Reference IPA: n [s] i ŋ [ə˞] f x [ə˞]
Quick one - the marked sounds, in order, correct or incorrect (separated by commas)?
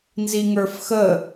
incorrect, correct, incorrect